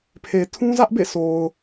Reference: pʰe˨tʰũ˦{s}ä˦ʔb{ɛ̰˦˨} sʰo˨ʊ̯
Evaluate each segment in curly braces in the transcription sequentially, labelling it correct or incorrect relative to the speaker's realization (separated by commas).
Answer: incorrect, incorrect